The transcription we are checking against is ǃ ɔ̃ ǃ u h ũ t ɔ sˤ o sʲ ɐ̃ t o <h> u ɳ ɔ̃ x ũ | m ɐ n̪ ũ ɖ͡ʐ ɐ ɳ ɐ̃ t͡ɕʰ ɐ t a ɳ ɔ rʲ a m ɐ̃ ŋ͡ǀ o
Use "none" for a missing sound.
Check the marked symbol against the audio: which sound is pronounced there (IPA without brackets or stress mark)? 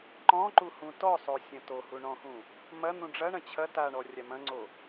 h